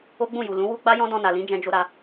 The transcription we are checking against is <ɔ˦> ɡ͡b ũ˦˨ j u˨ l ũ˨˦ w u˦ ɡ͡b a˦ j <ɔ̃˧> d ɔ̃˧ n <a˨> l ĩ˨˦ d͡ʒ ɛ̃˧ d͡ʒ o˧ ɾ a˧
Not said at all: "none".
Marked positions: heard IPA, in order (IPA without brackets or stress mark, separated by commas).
o˦, ɔ̃˦, a˨